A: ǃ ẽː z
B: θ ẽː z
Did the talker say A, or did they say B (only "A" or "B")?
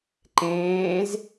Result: A